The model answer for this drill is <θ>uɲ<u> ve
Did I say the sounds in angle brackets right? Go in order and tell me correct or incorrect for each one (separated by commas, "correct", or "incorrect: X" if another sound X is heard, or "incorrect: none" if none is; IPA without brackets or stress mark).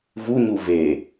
incorrect: v, correct